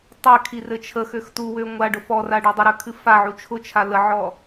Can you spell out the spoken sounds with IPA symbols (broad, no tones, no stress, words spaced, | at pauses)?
tˤɘkʰi rɘt͡ʃʰəxøx tuwø ŋʷaɖʊ fɔra ɖɔdˤəɾø kʰɨfaʕu t͡ʃʰʊt͡ʃʰa ləʕɔ